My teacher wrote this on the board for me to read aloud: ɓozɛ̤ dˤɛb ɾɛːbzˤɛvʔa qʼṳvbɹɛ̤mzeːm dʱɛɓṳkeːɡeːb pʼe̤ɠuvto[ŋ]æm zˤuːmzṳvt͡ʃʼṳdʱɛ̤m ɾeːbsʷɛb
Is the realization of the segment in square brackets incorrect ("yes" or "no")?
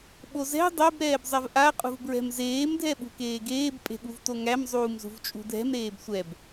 no